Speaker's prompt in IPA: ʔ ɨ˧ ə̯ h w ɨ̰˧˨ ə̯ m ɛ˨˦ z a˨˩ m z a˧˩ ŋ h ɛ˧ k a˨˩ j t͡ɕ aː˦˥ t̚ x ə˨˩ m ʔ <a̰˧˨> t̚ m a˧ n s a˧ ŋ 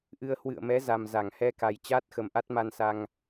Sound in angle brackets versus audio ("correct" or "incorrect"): incorrect